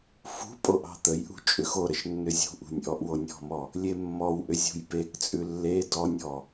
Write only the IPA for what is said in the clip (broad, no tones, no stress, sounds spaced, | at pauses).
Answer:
f ṳ pʼ o ʔ ɑ̤ t̪ ə j ʔ ṳ t͡ʃʼ ʏ x o ɾ ə ʃ nː ʏ zʲ ṳ ʔ ṳ nʲ ʔ ɔ ʔ w o nʲ ɔ̤ m ɔ | lʲ e mː ɔ w ʔ ʏ zʲ ṳ j p e k t͡sʼ ʉ lː e d ɔ nʲ ɔ